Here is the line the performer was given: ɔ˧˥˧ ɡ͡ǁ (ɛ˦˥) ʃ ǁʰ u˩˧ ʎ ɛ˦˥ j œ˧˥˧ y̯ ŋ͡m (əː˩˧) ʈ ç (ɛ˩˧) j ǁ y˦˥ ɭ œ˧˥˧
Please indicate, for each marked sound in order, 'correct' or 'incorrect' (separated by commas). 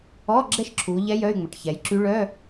correct, incorrect, correct